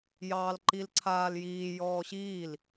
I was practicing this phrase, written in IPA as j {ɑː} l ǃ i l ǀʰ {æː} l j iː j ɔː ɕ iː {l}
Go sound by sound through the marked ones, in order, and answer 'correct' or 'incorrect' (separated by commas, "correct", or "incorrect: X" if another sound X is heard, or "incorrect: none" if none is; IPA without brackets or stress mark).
correct, incorrect: aː, correct